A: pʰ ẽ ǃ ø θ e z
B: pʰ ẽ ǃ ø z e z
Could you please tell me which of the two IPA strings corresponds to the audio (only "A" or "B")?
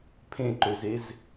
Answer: B